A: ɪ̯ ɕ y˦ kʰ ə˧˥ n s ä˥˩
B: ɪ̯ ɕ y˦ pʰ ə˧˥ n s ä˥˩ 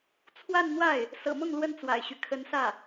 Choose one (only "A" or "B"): A